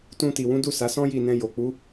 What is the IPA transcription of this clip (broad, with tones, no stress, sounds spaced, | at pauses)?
t ũ˧ t i˨ w ũ˨˦ d u˦˨ s a˨˦ s ɔ̃˦ j i˦˨ n ɛ̃˧ j o˨ k͡p u˨˦